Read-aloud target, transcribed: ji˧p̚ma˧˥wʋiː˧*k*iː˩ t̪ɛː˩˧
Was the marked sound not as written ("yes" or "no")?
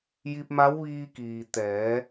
no